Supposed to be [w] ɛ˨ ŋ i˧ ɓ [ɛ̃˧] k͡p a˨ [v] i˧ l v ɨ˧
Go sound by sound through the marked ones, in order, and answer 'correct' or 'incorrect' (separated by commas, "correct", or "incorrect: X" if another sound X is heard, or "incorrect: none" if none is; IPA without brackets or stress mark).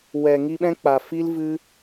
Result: correct, correct, incorrect: f